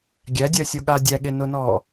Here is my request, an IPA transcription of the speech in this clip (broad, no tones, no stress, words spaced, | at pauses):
ɡʲædʲɜsʲoɠa dʲæɠenʊnɔ